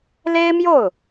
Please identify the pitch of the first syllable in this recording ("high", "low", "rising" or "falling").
high